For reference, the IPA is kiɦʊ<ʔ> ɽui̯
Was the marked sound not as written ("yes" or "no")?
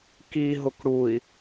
yes